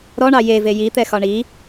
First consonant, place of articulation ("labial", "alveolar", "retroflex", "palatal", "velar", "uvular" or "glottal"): alveolar